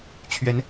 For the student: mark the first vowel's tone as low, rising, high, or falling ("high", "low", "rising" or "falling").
rising